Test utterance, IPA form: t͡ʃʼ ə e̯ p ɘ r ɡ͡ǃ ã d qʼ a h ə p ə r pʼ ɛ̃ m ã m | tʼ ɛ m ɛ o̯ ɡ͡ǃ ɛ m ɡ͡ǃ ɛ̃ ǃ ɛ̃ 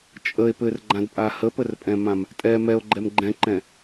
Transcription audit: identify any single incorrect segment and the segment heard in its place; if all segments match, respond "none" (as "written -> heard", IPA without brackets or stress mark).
qʼ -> pʼ